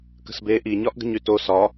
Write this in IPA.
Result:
kə̤sbe ʔi ɲɒʔɡə̤ɲyto sɒ

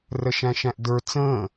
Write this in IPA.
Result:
rəʃæ̃ʃæ̃ʔdə˞ t͡sə̃ː

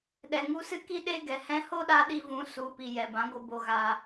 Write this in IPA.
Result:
ɗɛ˨ŋu˧sɨ˦ki˦ ɗe˦ɡɛ˨ hɛ̃˧ho˦ɗa˧ ɗi˧vũ˨˦ su˨pi˨ jɛ˨bã˨˦ɡʷɨ˧ bo˧ɣaː˧

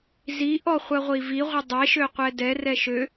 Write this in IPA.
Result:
ziʔɔ χʷɜʁʷiviʁʷɛ dˤeʃø qʷɛdɛrɛ ʃø

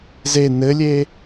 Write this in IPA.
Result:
ze nɘlʲe

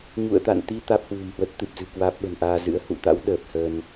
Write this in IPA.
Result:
ɲṵ˧˨ə̯t̪a̰˧˨nt̪i˧ t̪aː˦˥p̚hwṳ˨˩mhwə˦˥t̚ t̪ɨ˨˩p̚zɨ̤˨˩ kwaː˦˥p̚ɓə̤˨˩nʔaː˧zɨ̰˧˥ə̯ hṵ˧˨t̪a̰˧˥w ɗəː˨˩p̚ həː˧n

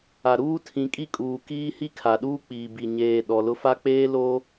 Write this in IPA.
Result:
a˨ɾuː˦tʰĩ˨˦kʼi˦˨ kʼuː˨kiː˦hi˦ kʰa˨ɗuː˦k͡piː˨bi˨ ɲeː˨ ɗɔ˨lʊ˦ fa˦k͡peː˦loː˦

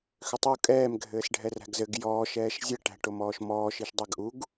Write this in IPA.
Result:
xʏtˤu kʼɛːm ɡʱɘːsɖʱɛræ̤ɡzɘɡ jɔːʃ ɛːʃzʲɘ ʈæ̤ʈomɔːʃmɔː ʃiʃdˤɛɡʔuɡ

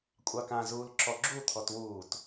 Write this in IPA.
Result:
kʷʼɑkã zuːlǁɔɡ͡ǁu t̪ʰɔtwuːt

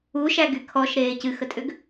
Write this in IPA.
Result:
uʃæɡy kʰɔʃɾeː cɨxətʼʏɡ

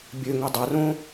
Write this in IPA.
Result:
bʲøŋø dˤarõ

